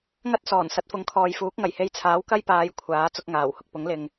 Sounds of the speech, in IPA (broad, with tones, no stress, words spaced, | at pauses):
ŋɐ˥t̚sɔː˨˩n sɐ˨˥t̚fʊ˨˥ŋkʰɔː˨jfuː˨˥k̚ ŋɐ˨˩jhe˧jt͡sʰaː˨˥w kɐ˥jpaː˨˧j kʷʰaː˨˥ t͡sʊ˧k̚ŋaː˨˩whʊ˨k̚pʊ˨˥ŋ lɪ˨ŋ